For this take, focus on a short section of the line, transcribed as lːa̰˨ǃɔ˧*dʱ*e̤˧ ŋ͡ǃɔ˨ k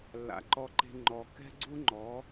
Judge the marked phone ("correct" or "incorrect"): incorrect